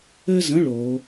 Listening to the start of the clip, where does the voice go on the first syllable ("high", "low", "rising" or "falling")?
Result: high